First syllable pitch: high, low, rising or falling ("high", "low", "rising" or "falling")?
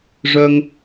high